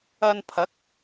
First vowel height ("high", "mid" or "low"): low